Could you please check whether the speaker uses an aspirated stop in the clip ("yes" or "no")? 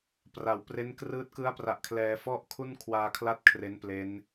yes